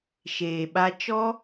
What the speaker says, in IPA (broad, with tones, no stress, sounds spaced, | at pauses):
ʃ eː˨ ɓ a˧ t͡ʃ ɔ˦